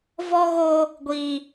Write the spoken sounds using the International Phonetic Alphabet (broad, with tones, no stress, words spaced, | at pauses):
vɔ˦ɣoː˦ | ɡʷiː˦